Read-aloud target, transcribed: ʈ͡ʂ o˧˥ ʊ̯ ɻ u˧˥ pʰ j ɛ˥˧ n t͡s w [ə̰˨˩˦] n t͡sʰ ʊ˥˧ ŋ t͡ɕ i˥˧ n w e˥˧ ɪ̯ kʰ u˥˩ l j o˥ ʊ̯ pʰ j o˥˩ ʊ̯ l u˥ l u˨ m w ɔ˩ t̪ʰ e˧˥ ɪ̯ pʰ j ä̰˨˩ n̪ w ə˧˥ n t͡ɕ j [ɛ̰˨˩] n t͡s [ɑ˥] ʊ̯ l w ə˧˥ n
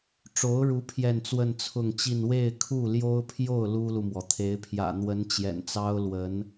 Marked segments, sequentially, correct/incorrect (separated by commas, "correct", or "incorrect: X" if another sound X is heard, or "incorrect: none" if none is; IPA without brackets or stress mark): incorrect: ə˥˧, correct, correct